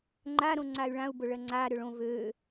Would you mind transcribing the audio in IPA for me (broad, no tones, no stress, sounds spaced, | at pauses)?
ŋ͡ǃ a ɾ õ ŋ͡ǀ a y̯ ɭ ã u̯ b ʊ ɭ ɜ ŋ͡ǀ aː ɾ ø ɭ õ v øː